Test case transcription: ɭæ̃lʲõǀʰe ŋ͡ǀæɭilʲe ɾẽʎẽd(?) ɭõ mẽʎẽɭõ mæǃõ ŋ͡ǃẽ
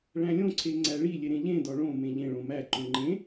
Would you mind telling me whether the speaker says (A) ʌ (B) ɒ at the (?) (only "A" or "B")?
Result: B